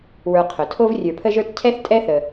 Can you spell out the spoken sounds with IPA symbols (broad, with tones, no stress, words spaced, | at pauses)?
wə˞˨qʰʊ˩tʰo˦v rʲə˞˨pʰə˦ʒə˞˦t cʰɛ˥θ tʼɛ˥θə˨